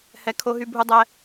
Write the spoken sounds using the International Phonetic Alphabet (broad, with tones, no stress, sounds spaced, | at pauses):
h ɛ˨˦ kʰ o˧ ɦ y˧ bʱ u˧ dˤ ɛ˧